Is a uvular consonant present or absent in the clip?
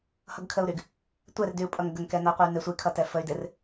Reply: present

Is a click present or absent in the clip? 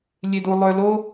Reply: absent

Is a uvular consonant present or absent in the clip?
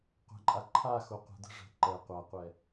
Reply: present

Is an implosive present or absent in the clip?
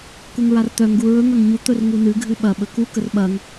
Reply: present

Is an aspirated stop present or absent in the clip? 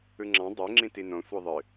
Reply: absent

